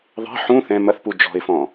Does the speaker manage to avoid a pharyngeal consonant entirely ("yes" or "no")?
no